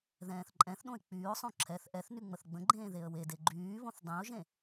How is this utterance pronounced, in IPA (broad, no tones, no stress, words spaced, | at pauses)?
ðɛ̃ːθǃʼɛ̃θɗõɪ̯ k͡pyːʊ̯sˤõ ǁʰɛθ ʔɛθ nyŋ͡məθɡ͡bə̃ɡ͡ǃẽː ðeə̯wede ɡ͡ǃyːβõθ dˤẽʊ̯ʒẽ